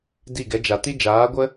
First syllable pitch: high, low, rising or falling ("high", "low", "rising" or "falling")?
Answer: falling